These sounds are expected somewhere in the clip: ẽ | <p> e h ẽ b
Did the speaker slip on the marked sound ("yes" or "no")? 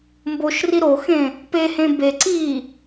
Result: no